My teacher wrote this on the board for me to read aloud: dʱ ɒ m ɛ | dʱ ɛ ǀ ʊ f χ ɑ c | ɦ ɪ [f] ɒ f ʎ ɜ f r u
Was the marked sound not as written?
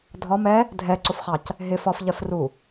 no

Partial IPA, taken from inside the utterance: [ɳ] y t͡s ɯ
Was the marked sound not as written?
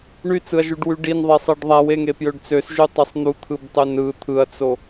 no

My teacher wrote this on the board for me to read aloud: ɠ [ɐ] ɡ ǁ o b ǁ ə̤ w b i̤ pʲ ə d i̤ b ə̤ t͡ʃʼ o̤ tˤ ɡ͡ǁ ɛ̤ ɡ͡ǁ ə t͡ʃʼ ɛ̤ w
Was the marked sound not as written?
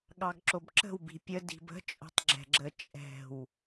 yes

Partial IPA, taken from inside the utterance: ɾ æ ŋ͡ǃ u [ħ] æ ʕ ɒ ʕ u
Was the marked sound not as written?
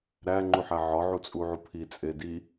no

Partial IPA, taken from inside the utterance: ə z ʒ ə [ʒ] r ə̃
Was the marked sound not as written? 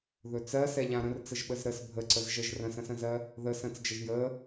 no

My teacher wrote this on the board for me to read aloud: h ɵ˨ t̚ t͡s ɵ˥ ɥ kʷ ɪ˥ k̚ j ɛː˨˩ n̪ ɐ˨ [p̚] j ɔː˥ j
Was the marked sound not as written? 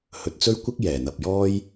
no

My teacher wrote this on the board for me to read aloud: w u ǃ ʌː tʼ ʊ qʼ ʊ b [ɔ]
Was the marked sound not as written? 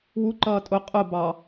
yes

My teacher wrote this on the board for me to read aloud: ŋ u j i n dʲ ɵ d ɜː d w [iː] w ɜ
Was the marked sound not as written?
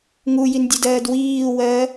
no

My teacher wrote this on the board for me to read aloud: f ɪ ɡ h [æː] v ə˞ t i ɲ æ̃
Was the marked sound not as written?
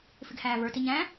no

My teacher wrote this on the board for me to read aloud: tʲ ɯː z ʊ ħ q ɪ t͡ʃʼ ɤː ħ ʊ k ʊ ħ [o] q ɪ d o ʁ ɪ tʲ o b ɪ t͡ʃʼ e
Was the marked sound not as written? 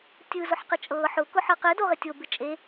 yes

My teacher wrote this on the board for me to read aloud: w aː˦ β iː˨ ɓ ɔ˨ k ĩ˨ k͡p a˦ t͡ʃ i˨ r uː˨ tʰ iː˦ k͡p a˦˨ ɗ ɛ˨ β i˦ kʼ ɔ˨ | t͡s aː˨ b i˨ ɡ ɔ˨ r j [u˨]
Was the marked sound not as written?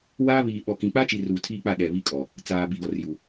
no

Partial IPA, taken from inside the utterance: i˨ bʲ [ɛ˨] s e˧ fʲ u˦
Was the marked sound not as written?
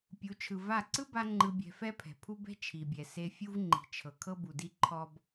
no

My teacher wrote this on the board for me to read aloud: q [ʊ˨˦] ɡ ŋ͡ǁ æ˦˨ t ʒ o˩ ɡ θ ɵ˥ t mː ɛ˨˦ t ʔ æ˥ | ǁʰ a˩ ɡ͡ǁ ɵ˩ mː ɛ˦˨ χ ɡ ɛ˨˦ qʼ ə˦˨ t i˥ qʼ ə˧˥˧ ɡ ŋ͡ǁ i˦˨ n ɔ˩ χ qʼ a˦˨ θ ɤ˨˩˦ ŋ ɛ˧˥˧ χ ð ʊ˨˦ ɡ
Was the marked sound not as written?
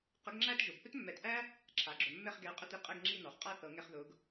yes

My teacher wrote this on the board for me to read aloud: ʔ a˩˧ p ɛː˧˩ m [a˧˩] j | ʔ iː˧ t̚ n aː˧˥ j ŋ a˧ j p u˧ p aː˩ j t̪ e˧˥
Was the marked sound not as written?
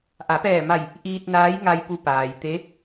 no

